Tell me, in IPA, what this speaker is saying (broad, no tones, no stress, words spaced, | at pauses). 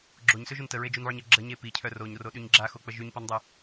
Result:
ɡ͡ǁoɲsøʒun təɹed͡ʒunʕy ɲə ɡ͡ǁəɲe picʰœ roɲroɗyɲ ɡ͡ǁaxok͡pə ʒyɲpɔndˤu